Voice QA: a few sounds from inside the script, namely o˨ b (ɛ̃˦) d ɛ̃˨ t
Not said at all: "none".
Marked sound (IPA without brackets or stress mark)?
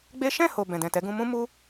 ɛ̃˨